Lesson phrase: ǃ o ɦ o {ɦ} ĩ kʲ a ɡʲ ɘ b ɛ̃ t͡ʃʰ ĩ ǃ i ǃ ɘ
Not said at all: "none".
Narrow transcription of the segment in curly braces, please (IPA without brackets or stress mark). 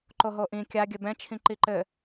ʔ